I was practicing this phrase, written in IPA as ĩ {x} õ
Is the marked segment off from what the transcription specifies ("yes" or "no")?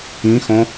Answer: no